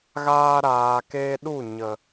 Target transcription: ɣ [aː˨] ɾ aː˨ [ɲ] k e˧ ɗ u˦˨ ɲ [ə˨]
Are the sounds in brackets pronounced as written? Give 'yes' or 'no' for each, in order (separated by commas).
no, no, yes